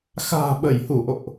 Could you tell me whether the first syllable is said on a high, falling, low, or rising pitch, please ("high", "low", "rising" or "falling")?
low